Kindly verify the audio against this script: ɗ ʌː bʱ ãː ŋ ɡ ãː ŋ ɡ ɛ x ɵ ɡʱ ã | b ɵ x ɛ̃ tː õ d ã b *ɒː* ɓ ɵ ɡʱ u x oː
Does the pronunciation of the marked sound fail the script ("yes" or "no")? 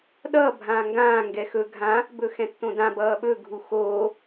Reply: yes